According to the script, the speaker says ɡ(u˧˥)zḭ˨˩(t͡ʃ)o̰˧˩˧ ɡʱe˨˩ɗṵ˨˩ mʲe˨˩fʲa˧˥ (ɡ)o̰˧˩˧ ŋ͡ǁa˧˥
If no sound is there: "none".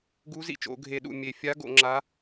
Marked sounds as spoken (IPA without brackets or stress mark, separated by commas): u˧˥, t͡ʃ, ɡ